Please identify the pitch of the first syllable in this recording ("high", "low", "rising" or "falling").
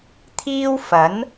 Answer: high